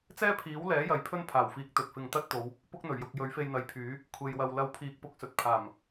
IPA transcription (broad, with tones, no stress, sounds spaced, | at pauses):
t͡s ɛː˥ pʰ iː˨˥ w l ɛː˨˥ j ɐ˨ j pʰ ɵ˥ n pʰ aː˨˩ w f iː˨˥ k̚ t̪ ɵ˨ t̚ f ɪ˧ ŋ t̪ ɐ˥ t̚ t̪ o˨˧ w | p ʊ˥ k̚ n̪ ɵ˨˩ ɥ j ʊ˨ k̚ j ɵ˨˥ ɥ f e˧ j n̪ ɐ˨ j pʰ yː˨˥ | kʷʰ e˧ j w ɐ˧ w l ɐ˧ w pʰ iː˨ k̚ p ʊ˧ k̚ s ɵ˨ t̚ pʰ aː˨˩ m